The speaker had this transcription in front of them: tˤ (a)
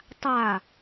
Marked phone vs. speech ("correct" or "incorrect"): correct